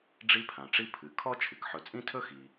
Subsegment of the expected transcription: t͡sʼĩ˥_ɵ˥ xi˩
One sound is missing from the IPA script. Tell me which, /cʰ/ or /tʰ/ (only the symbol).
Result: tʰ